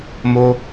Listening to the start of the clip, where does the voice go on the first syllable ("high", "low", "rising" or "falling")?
high